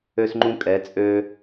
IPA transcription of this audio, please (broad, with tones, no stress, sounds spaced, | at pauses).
ø˧ s ŋ͡ǃ ũ˧ kʼ ɛ˩˧ t͡sʼ ø˧